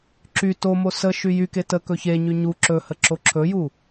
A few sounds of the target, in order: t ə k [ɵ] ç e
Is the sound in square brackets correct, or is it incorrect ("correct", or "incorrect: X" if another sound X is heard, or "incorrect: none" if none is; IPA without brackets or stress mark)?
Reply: correct